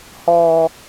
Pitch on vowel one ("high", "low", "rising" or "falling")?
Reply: high